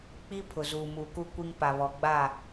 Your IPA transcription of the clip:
k͡p i˦ pʰ ʊ˨ z uː˨ m uː˨ k u˦ kʷ i˦ ŋ p a˨ β ɔ˨ ɡ͡b a˦˨

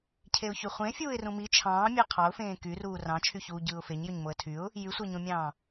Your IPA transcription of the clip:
cʰ e ʊ̯ ç y χʷ ẽ fʲ uː ɪ̯ r ũ m i t͡ʃʰ ɑ̃ː mʲ ɑ qʰ ɑ ʊ̯ f ẽː k y r uː r ɑ̃ t͡ʃʰ y ç uː ɟ ɯː ʊ̯ f e ɲ j ø ɲ m o ə̯ tʰ y ʊ̯ | j y sʷ æ ɲ õ mʲ ɑ̃ː

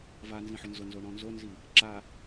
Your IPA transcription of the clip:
v a n z ĩ ħ ʊ n z ʊ n z o ɳ ɔ̃ n z o n z i | ǁ a

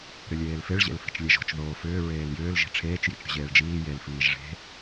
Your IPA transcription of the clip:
ɾ ʏ lʲ eː l f e ɭ ʑ ḛ l f i̤ t͡ʃ lʲ e ʒ o̤ t͡ʃ ð oː f ʏː ɹ eː l j ʏː l ʒ i̤ ʈ͡ʂʰ eː t͡ʃ j ḭ t͡ʃ ɾʲ o̤ ʑ eː ɭ d͡ʒ iː j e l f iː ʒ ʐ e̤

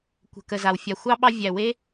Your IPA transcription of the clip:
kʷ ə̤˨ k ə˨ z a˨ w fʲ a˨ xʷ ɑ˦ ɓ ɑ˧ vʲ æ˨ w e˦

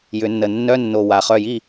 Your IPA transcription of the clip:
j ʏ˨˩˦ nː ə˨˩ nː œ˧˥˧ nː o˨˩ w a˨˩ χ œ˥˩ j i˥˩

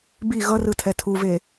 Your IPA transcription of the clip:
b i ɣ ʌ r ɯ tʰ ɛ tʰ u v e

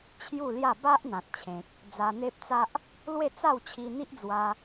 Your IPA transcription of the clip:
t͡ɕʰ j u˥˧ l j a˥˧ b a˦ ʔ n̪ ã˨ t̚ t͡ɕʰ ẽ˨ k̚ | d͡z a˧ n̪ e˦ p̚ t͡s a˦ ʔ | l w e˥˧ t͡s a˥˧ w t͡ɕʰ i˧ n̪ i˦ ʔ d͡z w a˧

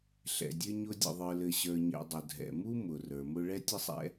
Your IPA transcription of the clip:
ɬ ɛ̰˩ dʲ ɘ˦ ɲ ʊ˦ dʲ ə̰˨ ðˤ ə˞˨ l ɘ˨ ɕ ə˞˨ ɲ ɛ̰˨ dˤ ʊ˩ dʱ ɛ̰˩ m u˥ m ʊ˩ r ə˞˩ m ʊ˦ ɭ ɛ˥ tʲ ə˥ sˤ ɛ̰˦

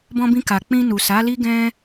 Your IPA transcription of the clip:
b ɔ̃˧ b ĩ˧ k a˨ k͡p ĩ˧ n u˨ s a˨˦ l i˦ ɡ ɛ̃˦

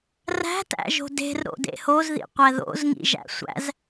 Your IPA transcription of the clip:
r æ̤ t æ̰ ʒ o̤ d e̤ r ɾ o̰ d ḛ h o z ð ḭ qʷ æ ð o̰ z ŋ ḭ ʒ æ̰ sʷ æ̰ z

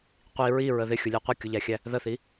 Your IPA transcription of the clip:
qʷ i ɹ i ɹ ə ð ɪ xʲ ʊ lʲ ə˞ qʷ ə kʲ ʊ ʎ æ xʲ æ | ð ə θ i

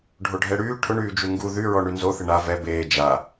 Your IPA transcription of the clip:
ɖʱ o ɖʱ ɛ ɽ yː ʈʰ ʊ ɳ yː d͡ʒ u ŋ ɡ u ð y ɹ ɔ ɳ y n z o θ ɪ ɳ a v ɛ b eː d͡ʒ a

